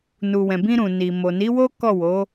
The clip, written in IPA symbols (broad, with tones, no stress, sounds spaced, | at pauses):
n u˨ w ɛ̃˨ b ĩ˧ ɾ ũ˨ n i˨ m o˨ n i˨˦ w o˦ k ɔ˦˨ w o˨˦